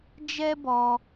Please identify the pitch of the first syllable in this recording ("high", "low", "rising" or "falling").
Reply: high